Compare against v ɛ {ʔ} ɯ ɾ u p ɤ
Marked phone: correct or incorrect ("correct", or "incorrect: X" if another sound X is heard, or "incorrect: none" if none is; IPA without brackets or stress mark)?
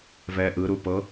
correct